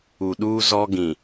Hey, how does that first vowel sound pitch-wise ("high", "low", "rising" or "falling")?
low